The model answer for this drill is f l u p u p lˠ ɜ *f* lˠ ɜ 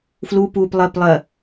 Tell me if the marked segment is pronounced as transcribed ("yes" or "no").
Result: no